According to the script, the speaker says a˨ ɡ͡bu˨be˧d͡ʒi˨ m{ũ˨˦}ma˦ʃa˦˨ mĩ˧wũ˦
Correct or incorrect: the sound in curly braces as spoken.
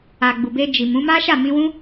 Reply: correct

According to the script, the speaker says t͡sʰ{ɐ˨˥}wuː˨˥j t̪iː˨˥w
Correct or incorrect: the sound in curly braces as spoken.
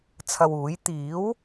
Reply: incorrect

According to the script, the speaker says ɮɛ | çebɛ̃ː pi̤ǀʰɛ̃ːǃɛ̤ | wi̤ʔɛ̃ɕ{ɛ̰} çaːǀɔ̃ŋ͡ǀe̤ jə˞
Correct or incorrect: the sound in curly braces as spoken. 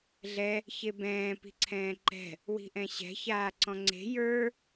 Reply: incorrect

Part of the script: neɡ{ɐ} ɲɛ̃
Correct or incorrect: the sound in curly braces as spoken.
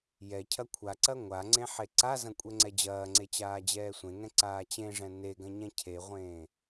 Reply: incorrect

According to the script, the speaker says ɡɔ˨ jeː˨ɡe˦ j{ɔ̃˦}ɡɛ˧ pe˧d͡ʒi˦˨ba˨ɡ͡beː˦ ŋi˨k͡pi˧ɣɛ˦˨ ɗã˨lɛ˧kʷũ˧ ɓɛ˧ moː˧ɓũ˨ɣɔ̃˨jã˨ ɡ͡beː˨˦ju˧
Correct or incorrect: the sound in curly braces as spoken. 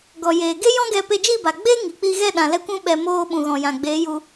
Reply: correct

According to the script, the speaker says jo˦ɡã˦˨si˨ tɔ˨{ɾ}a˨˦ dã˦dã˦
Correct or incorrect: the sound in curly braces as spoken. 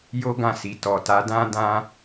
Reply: incorrect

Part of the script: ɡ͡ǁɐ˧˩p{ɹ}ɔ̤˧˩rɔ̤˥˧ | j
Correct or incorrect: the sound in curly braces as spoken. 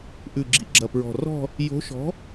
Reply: correct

